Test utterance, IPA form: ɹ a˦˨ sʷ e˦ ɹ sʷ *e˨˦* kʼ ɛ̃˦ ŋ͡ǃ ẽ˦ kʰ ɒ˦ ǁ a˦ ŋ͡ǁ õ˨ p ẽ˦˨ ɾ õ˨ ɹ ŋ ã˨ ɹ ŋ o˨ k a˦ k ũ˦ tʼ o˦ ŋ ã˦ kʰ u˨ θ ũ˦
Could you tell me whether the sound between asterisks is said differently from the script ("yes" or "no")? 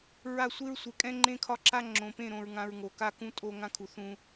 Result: no